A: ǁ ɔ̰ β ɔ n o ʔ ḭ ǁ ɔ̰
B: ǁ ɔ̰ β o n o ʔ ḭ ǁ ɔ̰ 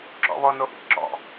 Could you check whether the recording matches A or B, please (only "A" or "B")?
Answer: A